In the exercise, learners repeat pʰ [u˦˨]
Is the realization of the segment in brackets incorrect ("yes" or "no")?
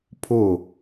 yes